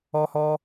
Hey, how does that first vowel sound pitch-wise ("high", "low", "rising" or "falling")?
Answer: high